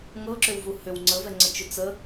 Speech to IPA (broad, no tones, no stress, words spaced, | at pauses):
ŋɤǁʏwvu hʏw ŋ͡ǀəvɛŋ͡ǀət͡ʃʏ t͡sə